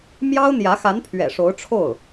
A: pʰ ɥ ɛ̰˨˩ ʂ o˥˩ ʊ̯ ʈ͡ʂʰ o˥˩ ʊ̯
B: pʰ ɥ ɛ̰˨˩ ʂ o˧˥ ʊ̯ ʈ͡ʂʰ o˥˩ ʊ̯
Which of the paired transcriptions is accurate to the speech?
B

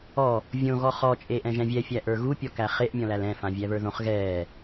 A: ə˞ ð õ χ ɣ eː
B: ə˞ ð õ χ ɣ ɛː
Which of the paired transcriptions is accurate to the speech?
B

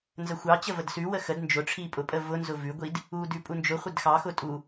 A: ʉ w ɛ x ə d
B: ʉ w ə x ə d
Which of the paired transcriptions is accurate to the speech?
B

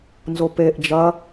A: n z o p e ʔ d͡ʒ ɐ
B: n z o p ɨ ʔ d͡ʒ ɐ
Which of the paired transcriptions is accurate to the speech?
A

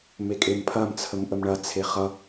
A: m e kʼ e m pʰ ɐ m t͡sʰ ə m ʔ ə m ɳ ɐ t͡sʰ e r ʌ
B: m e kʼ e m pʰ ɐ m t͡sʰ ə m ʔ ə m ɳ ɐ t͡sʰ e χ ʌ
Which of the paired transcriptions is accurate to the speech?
B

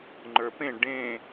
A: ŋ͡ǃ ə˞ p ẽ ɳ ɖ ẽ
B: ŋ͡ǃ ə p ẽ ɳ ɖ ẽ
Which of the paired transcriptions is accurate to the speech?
A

